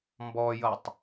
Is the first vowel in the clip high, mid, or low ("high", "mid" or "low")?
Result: mid